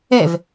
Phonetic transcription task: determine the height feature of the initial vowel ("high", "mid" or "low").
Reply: mid